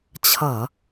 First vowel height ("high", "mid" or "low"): mid